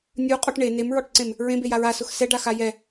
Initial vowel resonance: oral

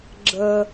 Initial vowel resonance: oral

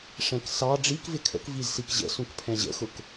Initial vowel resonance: nasal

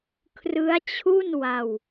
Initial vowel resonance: oral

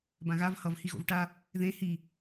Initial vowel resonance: nasal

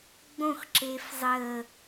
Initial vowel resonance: nasal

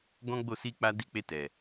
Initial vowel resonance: nasal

